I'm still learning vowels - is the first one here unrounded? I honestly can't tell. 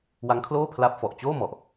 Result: yes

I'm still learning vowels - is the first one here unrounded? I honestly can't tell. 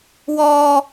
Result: no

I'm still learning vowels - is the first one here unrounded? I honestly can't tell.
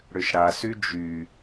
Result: no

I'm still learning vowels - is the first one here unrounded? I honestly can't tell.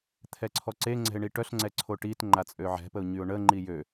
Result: yes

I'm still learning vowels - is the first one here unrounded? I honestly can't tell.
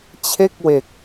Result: yes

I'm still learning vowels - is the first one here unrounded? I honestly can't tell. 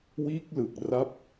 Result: yes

